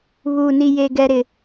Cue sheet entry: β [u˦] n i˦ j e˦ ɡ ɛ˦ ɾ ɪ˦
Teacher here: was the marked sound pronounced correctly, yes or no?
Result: no